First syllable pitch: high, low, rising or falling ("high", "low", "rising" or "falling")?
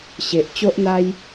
low